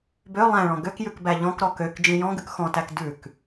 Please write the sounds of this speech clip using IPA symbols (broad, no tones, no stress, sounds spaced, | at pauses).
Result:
b ø lˠ æ̃ ɭ ɔ̃ ɡ ø k j ʉ k b æ ʎ ɔ̃ k ɾ ɔ k ø k d͡ʒ ĩ j ɔ̃ ɡ ʉ k x ɔ̃ t æ k d ʉ k